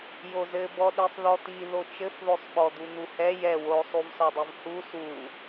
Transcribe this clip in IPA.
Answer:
j o z ɘ b ɔ ɗ i sˤ ð ɔ t̪ i ð o t͡ʃ ɘ f ð o sˤ ɓ ɔ d̪ u n̪ u h ɛ j ɛ w o sˤ u v s ɔ dˤ i v h u s u

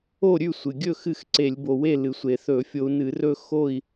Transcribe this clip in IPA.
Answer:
o˥˨ ɾʲ ʉ˥˨ sʷ ɨ˩ ɡʲ ɵ˥˨ x ɨ˥˨ x ǀ e˧˩˧ lʲ b o˩ w e˥˨ l ɨ˩ sʷ e˩ θ ɵ˧˩˧ fʲ o˧ u̯ n ɨ˧˩˧ r ɵ˥˨ x o˥˨ i̯

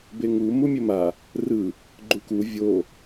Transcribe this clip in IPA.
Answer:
b e ŋ u m u mʲ ɵ m a | r ɯ | ɡ͡ǃ u k u vʲ o

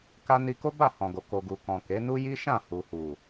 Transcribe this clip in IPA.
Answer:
k a˧ n i˧ k o˦ b a˦˨ h ɔ̃˨ ɡ o˨ k o˨ ɡ u˨ k ɔ̃˨ k e˨˦ n u˦ j i˦ ʃ ã˦˨ h u˨ h u˨

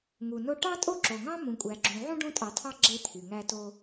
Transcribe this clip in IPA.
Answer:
ŋ u˩ n o˦ ʈ ɑ˥ tʼ o˥ ǁ o˩ ŋ ɑ̃˥ m ũ˨ kʷʼ æ˨ ɡ͡ǁ ũ˨ ʕ ũ˥ ɖ ũ˦ tʼ ɑ˨ tʰ ɑ˦ ɡ͡ǁ e˥ t̪ʰ y˩ ŋ æ˦ t o˦

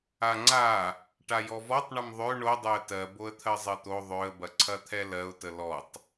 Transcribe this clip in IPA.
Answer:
a ŋ͡ǀ a | ʈ a j ɔ v ɔ tˤ ɳ ə m ðˤ ø ɳ o dˤ ø ə̯ t ɜ b o ə̯ t̪ʰ ɜ zˤ ɜ t̪ o ðˤ ø ə̯ b ɐ ǀʰ ɐ t̪ʰ ɛ l ɜ ʊ̯ t ə l ɔ tˤ

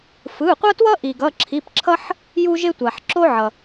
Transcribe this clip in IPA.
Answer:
f ɯ˩˧˩ qʷ ʌ˦ t w ʌ˦ ʔ i˩ ɡ ʌ˩˧˩ ǁʰ i˩˧˩ p ǁʰ ʌ˦ ħ | j u˦ ʒ e˦ tʷ a˩ ħ ǁ o˦ ʕ ʌ˩

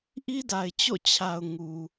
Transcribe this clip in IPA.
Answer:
ʔ i˦ d a˨ ɪ̯ t͡ɕ o̰˦˨ t͡ɕʰ a˨ ʊ̯ ŋ u˨

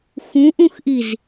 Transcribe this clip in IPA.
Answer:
x ũ ʔ ũ x ʔ i z

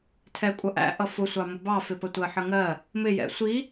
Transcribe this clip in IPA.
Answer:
tʰ ɛ kʷʼ ʌ ʔ æ̰ ʔ ʌ f ʊ sʷ ɑ m ʊ b ɑ f ɪ p ə tʷ ɜ ħ ə ŋ ɜ | m ɪ j ɛ̰ sʷ i

